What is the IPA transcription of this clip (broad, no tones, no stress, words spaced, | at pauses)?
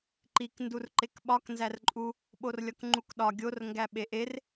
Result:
ǃik ndurǃekɓɒk nzærǃʼu | ɓorlʲɒkŋ͡ǃukɗɒ ɡʲor ŋɡæɓeʔer